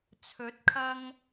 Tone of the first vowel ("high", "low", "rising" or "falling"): rising